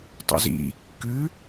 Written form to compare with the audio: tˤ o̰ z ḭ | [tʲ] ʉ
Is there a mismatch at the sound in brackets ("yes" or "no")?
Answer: yes